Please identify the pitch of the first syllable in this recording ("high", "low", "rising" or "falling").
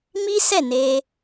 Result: high